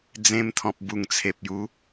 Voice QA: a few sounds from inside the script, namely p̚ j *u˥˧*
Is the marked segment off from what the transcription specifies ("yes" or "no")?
yes